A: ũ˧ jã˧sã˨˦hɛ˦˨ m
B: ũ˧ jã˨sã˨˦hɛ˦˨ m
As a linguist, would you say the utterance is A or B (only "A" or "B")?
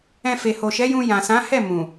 B